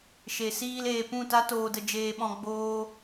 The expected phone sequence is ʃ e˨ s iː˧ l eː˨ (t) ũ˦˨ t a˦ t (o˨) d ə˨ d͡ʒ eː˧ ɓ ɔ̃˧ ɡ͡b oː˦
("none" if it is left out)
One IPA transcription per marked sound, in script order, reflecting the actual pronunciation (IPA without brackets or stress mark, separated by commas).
p, oː˨